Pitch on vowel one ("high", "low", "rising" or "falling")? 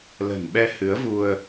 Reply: low